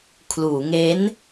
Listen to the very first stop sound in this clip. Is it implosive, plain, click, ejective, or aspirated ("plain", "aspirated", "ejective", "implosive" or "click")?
aspirated